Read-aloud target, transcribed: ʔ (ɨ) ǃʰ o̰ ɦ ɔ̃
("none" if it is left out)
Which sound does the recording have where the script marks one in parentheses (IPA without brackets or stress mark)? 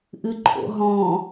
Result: ɨ